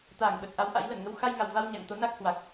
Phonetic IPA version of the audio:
t̪ aː˧˩ ŋ ɓ ə˨˩ t̚ ʔ a˨˦ w ʔ a̰˧˥ j l ə˧˩ n ŋ ə˨˦ w x a˧ j ŋ a˨˩ w v a˧ w ɲ a̰˧˨ ŋ t̪ o˨˦ n a˦˥ k̚ h w a˨˩ k̚

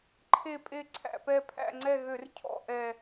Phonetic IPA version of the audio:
ǃʰ e˦˨ pʼ e˦˨ ǀʰ æ̰˦˨ p ɛ˦˨ pʰ æ̰˦˨ ŋ͡ǀ ɛ˦˨ ɣ ø˧˩˧ r cʰ ɔ̰˦˨ ʔ ɛ˨˩

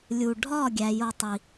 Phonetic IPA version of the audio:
lʲ u˨ ɖʱ ɒ˦˨ ɡʲ æ˧ j o˦ tˤ i˧

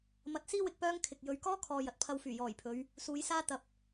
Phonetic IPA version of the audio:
m ɐ˨˥ t̚ s iː˥ w ɪ˨ k̚ p œː˥ ŋ kʰ ɪ˨ k̚ j ɵ˧ ɥ k ɔː˥ kʰ ɔː˨ j ɐ˨ t̚ pʰ ɐ˧ w f yː˨˩ j ɔː˨˩ j pʰ ɵ˨˧ ɥ | s uː˨˧ j s aː˥ t̪ ɐ˨ p̚

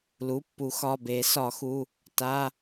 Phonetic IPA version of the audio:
l u˩˧˩ pː u˨˩˦ x ɒ˩˧˩ b e˨˩˦ s ɒ˨˩˦ x u˩˧˩ | t a˩˧˩

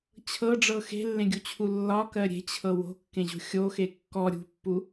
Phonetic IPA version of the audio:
t͡ɕʰ ɤ ɖ͡ʐ ɤ x e̤ lː ẽ ɡʲ u t͡ɕʰ u lː ɒ k ɜ ɾʲ e̤ t͡ɕʰ ɤ w o̤ kː ẽ ʑ o̤ xʲ o x e kː ɔ ɾʲ ṳ pː u

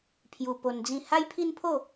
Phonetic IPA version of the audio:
pʰ j u˧ p o˧ n d͡z ĩ˥˧ h a˦ j pʰ i˦ n pʰ o˥˧

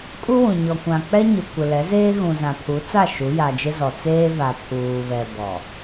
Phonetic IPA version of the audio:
kʼ u˦ w ũ˨ ɲ ɔ˨ kʷ ã˨ k͡p ɛ˦ ɲ ʊ˨ kʷ ɪ˨ l ɛ˨˦ z eː˦ ɣ ũ˨ z ã˨ pʰ u˨˦ t͡s a˦˨ ʃ u˨˦ j a˨ d͡ʒ ɪ˦ z ɔ˨ t͡s eː˦ v a˨ pʰ uː˨ β ɛ˨ b ɔ˨

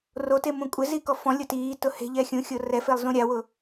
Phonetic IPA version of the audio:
r o t e m ũ kʷʼ ɪ z i k ɔ f ɔ̃ lʲ ʊ t iː t ʊ h e̤ ʎ ɛ xʲ ũ xʲ o r ɛ f e lˠ z ũ ɾʲ a w ʊ

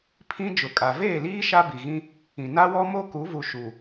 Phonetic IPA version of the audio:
pʰ ĩ˦ d͡ʒ ʊ˨ kʼ a˨ v eː˦˨ l iː˦ ʃ a˦ b i˨ ɣ ĩ˦ | ĩ˨ n a˦ w ɔ˦ m o˦ k u˨˦ v u˨ ʃ u˨

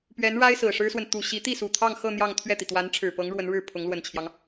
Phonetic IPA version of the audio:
p ɥ ɛ˧˥ n ɻ a˥ ɪ̯ s ɹ̩˨˩ ʂ ɻ̩˥ s w ə˨ n t̪ u˨˩ ɕ i˧˥ t̪ i˥˩ s u˨˩ t̪ʰ ɑ˥˧ ŋ x ɤ˥˧ n̪ j ɑ˥˧ ŋ t̪ʰ ɥ ɛ˥˩ t̪ i˩ t̪ w a˧˥ n ʈ͡ʂʰ ɻ̩˨˩ p ɤ˧˥ ŋ ɻ w ə˧˥ n ɻ ɻ̩˥˩ pʰ ʊ˧˥ ŋ l w ə˨˩ n t͡ɕʰ j ɑ˦ ŋ

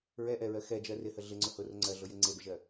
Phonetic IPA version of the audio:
ɹ ɛ ʔ ɛ ɹ ɜ x ɛ d͡ʒ ɜ r ɪ h ə ɮ ɪ ŋ͡ǀ ʊ h ʊ r ʊ ŋ͡ǀ ɜ ɮ ʊ j e ŋ͡ǀ e b ɪ ʒ ɜ

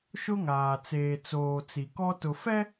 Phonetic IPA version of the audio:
ʃ ʊ˦ ŋ aː˨ t͡s eː˨ t͡s oː˨ t͡s i˨ k ɔ˦ t ʊ˨ f ɛ˦

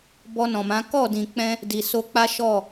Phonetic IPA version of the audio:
b ɔ˧ n ɔ̃˨ m ã˨˦ k ɔ˦˨ d ĩ˨ k͡p ɛ̃˧ | d i˨ s o˧ k͡p a˦ ʃ ɔ˦˨

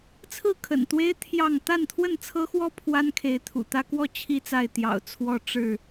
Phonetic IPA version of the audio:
t͡sʰ ɹ̩˥˨ kʰ ə̰˨˩ n t̪ w e˦ ɪ̯ t̪ʰ j ɑ˥˨ ŋ t̪ a˥˨ n t̪ʰ w ə˥˨ n t͡sʰ ɤ˦ x w ɔ˦ pʰ w a˦ n kʰ e˨˦ ɪ̯ t̪ʰ ṵ˨˩ t̪ ä˦ k w ɔ˥˨ t͡ɕʰ i˥˨ t͡s a˥˨ ɪ̯ t̪ j ɑ̰˨˩ ʊ̯ t͡sʰ w ɔ˥˨ ʈ͡ʂ ɻ̩˥˨

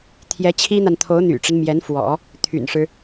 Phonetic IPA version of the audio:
t̪ʰ j ɛ˧˥ t͡ɕʰ i˥ n̪ a˨ n t̪ʰ o˧˥ ʊ̯ n̪ y̰˨˩ ʈ͡ʂ ə˦ n m j ɛ˧˥ n f w ɔ̰˨˩˦ | t̪ʰ y̰˨˩ n ʂ ɻ̩˦

